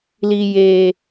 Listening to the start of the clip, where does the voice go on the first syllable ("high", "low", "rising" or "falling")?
low